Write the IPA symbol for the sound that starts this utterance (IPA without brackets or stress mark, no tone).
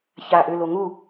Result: ç